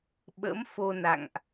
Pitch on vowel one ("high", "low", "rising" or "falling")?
rising